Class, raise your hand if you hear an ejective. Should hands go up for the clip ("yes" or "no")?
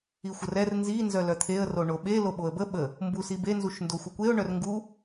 no